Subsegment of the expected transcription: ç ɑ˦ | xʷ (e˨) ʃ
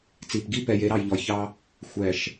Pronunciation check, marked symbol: incorrect: ɛ˨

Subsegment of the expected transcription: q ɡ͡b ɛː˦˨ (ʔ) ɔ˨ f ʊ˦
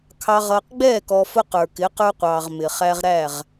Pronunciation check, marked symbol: incorrect: k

